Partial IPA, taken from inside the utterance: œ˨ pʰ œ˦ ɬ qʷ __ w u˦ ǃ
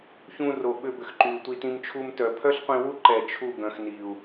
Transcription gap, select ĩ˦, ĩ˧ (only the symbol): ĩ˧